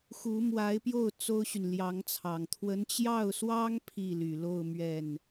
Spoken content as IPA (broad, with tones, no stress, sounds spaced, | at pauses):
x u˧˥ m w a˧˥ ɪ̯ p j o˥˩ ʊ̯ t͡s o˥ ʊ̯ ɕ y˨ n l j ɑ˧˥ ŋ t͡sʰ ɑ˨˩ ŋ t̪ʰ w ə˧˥ n t͡ɕ j ɑ˥˩ ʊ̯ s w ɑ˥ ŋ pʰ i˥˩ l y˨˩ l o˥˧ ʊ̯ m ɥ ɛ˥˩ n